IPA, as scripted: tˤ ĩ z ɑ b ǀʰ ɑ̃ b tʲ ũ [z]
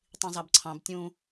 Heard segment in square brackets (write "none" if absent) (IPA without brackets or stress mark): none